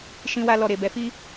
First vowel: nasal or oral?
nasal